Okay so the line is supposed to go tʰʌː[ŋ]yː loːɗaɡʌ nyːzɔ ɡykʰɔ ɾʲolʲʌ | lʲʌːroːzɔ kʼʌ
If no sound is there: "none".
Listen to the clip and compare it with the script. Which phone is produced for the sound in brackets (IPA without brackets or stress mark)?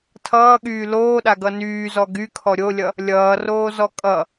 ɠ